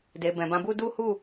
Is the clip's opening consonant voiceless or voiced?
voiced